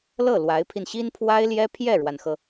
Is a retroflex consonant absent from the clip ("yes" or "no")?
no